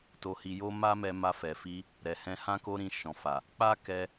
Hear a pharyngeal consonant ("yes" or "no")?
no